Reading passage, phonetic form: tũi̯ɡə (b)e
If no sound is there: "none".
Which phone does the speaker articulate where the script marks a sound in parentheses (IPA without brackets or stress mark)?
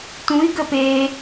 p